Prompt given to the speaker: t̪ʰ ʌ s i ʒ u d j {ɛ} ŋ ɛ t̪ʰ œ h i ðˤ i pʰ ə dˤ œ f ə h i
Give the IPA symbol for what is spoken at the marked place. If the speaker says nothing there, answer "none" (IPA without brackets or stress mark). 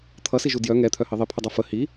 œ